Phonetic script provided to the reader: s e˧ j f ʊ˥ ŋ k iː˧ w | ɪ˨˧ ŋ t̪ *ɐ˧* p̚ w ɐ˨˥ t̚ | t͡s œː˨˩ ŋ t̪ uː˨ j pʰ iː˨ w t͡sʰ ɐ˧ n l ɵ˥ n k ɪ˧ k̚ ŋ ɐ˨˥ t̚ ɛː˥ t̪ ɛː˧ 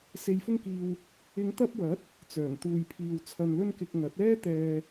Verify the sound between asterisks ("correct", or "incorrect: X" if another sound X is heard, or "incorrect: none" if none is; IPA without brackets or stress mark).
correct